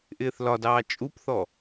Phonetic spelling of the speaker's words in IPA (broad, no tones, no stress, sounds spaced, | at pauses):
ʔ ɪː θ l ɒ d ɑː t͡ʃʼ u p θ ɔ